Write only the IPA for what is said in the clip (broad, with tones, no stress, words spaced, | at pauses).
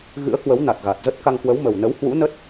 ɣɨ̰˧˥ə̯kwə˨˦w na˨˩t̚ɣa˨˩t̚zə˦˥t̚ ka˧ŋkwə˨˦wmə˨˩w nə˨˦whwṵ˧˥nə˦˥t̚